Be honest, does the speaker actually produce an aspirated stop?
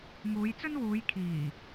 yes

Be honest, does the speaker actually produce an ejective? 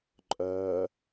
yes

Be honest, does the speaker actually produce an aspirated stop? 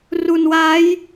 no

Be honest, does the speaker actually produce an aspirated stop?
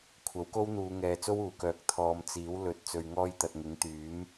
yes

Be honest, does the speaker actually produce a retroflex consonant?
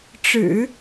yes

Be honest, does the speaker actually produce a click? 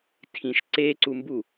yes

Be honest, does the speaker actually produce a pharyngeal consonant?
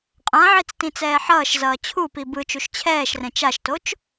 yes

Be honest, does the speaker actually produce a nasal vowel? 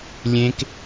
yes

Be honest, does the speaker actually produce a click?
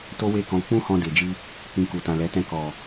no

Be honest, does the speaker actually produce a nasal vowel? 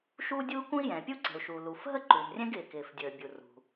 yes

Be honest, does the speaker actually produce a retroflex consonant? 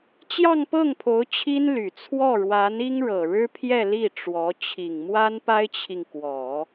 yes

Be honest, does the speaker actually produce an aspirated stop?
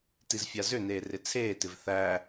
yes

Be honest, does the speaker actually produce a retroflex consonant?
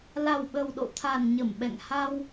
no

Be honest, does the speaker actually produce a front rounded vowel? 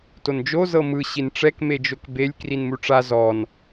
no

